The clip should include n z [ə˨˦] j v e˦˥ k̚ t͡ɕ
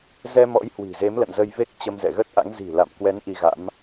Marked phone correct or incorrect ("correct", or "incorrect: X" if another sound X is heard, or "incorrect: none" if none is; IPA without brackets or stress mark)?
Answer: incorrect: ə˧